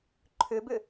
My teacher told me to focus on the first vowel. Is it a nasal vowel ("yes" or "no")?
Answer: no